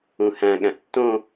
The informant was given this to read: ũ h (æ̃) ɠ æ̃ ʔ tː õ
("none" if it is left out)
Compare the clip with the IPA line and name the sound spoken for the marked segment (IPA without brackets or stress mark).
æ̃